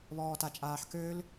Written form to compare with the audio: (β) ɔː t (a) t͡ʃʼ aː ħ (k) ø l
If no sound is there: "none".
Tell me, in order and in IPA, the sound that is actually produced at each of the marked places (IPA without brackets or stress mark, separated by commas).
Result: β, a, k